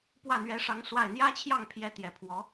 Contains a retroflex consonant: yes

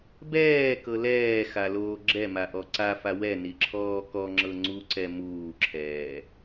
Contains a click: yes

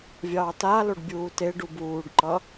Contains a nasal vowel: no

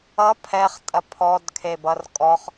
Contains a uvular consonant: yes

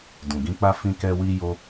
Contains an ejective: no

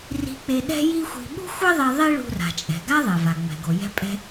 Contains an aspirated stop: no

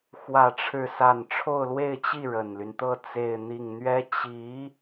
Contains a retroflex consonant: yes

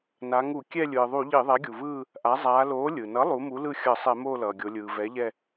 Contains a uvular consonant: no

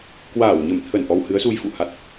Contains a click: no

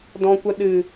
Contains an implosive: yes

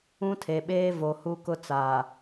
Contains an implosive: yes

